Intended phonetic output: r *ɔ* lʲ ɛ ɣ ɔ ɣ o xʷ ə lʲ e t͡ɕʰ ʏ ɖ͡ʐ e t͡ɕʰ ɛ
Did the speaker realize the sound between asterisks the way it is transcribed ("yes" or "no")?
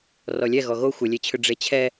yes